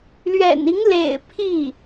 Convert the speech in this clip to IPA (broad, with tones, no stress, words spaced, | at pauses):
lɥɛ̰˨˩ni˧˥ŋlḛ˨˩ɪ̯ pʰi˥˩